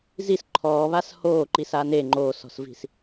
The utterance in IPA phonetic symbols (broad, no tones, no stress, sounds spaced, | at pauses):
z i s ǃʰ ɔː β a s h oː ǃ i s a n e ŋ͡ǃ oː s ɔ̤ s v i̤ s